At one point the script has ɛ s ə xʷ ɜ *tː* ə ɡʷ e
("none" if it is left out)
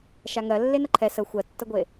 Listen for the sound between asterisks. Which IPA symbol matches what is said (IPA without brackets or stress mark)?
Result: tː